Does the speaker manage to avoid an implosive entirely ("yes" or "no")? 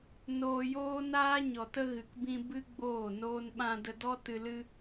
no